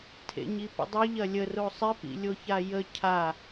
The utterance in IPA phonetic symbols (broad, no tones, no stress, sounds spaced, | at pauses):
tʰ ḛ ɲ i p ə̰ dˤ ɵ ʎ ɐ lʲ ə r o sˤ ɪ p ḭ lʲ o ç a j ə cʰ a